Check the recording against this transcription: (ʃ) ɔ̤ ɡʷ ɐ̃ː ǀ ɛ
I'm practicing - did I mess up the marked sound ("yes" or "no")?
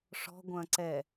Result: yes